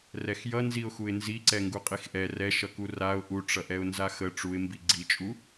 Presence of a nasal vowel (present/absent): absent